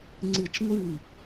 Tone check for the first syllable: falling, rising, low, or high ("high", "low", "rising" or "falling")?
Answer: falling